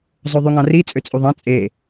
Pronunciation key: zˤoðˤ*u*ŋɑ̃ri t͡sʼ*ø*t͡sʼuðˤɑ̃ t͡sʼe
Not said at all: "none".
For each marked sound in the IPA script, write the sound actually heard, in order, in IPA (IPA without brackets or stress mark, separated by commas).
y, ø